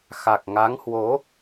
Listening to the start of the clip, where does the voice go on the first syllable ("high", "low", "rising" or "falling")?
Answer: low